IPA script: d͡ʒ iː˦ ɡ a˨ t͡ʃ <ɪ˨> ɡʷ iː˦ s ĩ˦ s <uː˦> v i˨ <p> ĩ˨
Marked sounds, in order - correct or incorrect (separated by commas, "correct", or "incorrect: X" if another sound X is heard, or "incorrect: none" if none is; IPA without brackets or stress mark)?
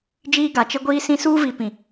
incorrect: ɪ˦, correct, correct